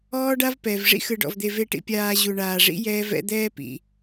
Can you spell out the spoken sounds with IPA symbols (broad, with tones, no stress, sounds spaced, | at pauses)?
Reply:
ɔː˦ ɖ a˦ v p ɛ˩ v ʐ ḭ˥ x ɯ˨ ɖ ɔ̰˨ v d̪ e˨ v e˨ ʈ ḭ˨ pʲ aː˨ ʑ u˨ ɳ aː˨ ʐ ḭ˥ j ɛː˦ v ɛ̰˦ d̪ ɛː˥ p ḭ˨